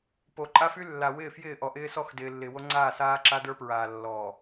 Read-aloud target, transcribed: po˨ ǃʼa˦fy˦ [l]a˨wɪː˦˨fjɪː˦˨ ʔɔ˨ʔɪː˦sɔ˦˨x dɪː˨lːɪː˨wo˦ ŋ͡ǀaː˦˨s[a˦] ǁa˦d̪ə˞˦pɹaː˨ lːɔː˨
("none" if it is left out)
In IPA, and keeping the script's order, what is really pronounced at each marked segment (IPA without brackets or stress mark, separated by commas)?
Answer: lː, aː˦